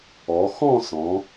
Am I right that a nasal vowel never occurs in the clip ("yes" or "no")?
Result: no